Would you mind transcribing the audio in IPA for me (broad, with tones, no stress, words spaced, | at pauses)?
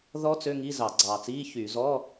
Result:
ðɔ˦˥ t͡sø˧˥˧ŋi˧˥˧ zɑ˧˩˧ɡ͡ǀɑː˨˩t͡siː˧˥˧çyː˧˩˧ zɔ˧˥˧